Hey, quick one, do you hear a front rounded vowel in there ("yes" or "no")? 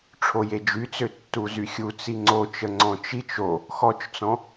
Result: yes